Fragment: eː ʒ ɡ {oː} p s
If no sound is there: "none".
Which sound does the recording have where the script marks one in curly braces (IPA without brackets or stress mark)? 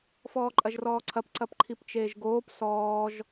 oː